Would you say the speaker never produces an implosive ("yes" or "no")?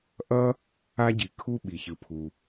no